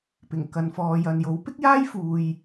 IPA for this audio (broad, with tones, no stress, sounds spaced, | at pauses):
p ɪ˨˩ ŋ k ɐ˨ n f ɔː˨ j ɐ˨ n j o˨˥ w p ɪ˥ k̚ j aː˥ j f uː˧ j